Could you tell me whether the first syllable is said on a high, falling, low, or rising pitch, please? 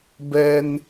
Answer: high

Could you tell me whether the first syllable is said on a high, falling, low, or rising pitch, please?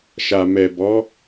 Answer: low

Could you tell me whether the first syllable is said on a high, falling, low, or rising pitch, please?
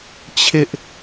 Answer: high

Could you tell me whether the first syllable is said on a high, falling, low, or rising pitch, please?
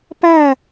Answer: falling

